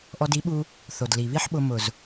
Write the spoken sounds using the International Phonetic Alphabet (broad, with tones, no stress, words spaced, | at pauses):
ʔɔ˧di˨˦ɓu˧ | θo˨dli˨βi˦ħɓʊ˧ mʊ˨z